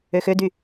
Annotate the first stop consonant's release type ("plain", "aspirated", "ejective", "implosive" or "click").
plain